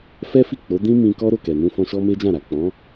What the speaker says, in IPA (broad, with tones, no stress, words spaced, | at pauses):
fɛ˦fi˦˨k͡po˨˦ dĩ˦mĩ˧ kɔ˦ ɾo˦˨kɛ˨nũ˧ fɔ̃˧ʃɔ˦me˦d͡ʒã˦˨ ɾa˨k͡pɔ̃˨˦